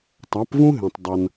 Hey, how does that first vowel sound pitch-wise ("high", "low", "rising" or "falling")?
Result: rising